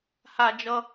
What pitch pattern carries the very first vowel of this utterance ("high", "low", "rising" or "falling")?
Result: high